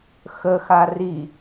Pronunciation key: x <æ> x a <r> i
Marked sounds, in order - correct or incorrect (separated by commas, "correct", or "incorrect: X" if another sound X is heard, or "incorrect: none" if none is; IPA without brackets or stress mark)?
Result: incorrect: ə, correct